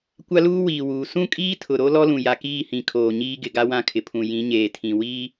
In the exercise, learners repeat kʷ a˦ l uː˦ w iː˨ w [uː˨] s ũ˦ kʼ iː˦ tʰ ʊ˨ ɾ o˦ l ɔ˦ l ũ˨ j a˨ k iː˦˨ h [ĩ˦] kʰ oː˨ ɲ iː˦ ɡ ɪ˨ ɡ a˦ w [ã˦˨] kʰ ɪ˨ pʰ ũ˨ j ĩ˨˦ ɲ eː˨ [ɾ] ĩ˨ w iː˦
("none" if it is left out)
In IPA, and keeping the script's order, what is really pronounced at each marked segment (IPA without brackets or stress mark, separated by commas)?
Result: uː˨, ĩ˨, ã˦, tʰ